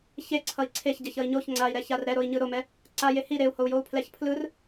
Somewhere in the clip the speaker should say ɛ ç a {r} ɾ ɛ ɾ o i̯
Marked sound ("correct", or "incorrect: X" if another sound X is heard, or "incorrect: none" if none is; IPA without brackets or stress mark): correct